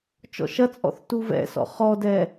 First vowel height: mid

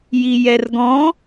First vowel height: high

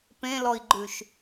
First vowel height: mid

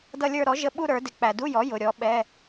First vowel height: mid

